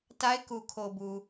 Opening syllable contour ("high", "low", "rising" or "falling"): high